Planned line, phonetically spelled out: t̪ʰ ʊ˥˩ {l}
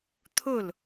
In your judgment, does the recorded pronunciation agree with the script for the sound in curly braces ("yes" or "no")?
yes